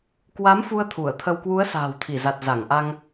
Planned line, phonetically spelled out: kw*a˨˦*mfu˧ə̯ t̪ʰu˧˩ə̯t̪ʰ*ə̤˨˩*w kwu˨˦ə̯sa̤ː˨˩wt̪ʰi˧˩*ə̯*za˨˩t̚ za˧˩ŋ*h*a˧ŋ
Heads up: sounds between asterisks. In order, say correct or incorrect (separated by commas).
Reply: correct, incorrect, incorrect, incorrect